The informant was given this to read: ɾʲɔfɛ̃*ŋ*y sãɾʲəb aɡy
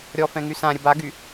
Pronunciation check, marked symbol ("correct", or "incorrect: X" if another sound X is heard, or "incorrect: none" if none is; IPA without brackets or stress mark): correct